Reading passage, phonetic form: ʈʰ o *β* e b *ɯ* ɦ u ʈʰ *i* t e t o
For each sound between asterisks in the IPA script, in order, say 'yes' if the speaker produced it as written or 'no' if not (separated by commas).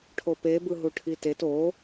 no, yes, yes